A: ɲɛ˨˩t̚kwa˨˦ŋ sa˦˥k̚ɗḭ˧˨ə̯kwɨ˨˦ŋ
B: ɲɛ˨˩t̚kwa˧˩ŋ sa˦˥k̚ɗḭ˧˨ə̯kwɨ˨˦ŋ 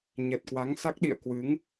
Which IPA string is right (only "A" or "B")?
A